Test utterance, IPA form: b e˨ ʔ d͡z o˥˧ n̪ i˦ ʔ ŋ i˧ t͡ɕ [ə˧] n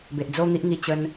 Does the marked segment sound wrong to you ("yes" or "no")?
no